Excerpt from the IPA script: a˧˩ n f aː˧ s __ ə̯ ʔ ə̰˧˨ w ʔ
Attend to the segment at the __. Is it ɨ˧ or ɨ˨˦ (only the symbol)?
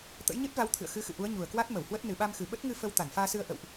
ɨ˧